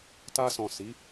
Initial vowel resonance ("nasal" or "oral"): oral